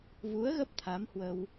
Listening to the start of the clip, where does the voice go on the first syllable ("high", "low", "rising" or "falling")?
rising